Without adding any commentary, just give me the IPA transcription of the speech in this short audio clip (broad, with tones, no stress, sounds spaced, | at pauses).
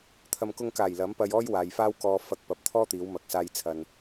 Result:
t̪ʰ ɐ˨ m k ʊ˧ ŋ k aː˨˩ j l ɐ˨˥ m p ɐ˧ j ɔː˥ j w aː˨ j f aː˥ w k ɔː˧ f ɐ˧ k̚ p ɐ˨˥ p̚ t̪ʰ ɔː˥ t̪ iː˨˧ w m ɐ˨ k̚ s aː˧ j t͡sʰ ɐ˨ n